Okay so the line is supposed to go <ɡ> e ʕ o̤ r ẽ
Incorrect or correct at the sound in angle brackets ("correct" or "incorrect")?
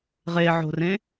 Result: incorrect